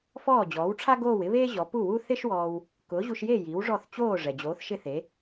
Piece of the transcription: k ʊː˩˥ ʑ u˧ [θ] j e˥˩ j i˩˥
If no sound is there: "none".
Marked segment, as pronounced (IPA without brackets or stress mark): ʃ